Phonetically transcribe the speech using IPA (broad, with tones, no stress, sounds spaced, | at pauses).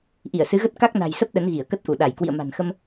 ʔ i˧˩ ə̯ s ɨ˨˦ ɣ ə˦˥ t̚ k a˦˥ k̚ n a̤˨˩ j s ə˦˥ p̚ ɗ ə˨˦ n ɣ i˧˩ ə̯ k ə˦˥ t̚ ʔ u˧˩ ɗ a˧˩ j k w ḭ˧˨ ə̯ m a̤˨˩ n x ə˧ m